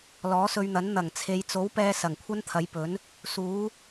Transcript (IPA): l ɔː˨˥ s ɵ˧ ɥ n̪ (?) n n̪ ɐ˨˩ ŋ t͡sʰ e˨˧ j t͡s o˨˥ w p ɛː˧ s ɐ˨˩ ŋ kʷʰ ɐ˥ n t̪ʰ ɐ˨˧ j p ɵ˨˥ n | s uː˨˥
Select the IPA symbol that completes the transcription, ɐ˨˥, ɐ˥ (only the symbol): ɐ˨˥